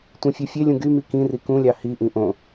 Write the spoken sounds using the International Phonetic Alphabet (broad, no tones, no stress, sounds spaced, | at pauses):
tʷ ĩ fʲ ø fʲ e lʲ ũ ɡ y m i k ĩ r i k ũ lʲ ɑ h i ʔ ĩ ʔ õ